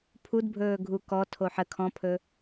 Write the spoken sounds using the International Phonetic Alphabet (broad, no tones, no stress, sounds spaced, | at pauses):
pʰ u d bʱ ɵː ɡʱ u k ɔ tʰ o ħ ə kʰ ɔ̃ pʰ ɵ